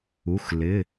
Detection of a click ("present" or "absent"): absent